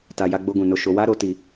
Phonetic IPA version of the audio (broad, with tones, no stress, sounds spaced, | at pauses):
t a˨ j a˧ ɡ͡b o˧ ɡ ũ˨ n o˧ ʃ o˧ w a˦ ɾ o˧ t i˨